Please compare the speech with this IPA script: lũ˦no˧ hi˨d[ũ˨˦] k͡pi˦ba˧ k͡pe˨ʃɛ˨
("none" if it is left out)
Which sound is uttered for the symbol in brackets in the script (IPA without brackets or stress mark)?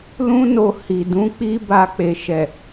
ũ˨˦